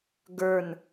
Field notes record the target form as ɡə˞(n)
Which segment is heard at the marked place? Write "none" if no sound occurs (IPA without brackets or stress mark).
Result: n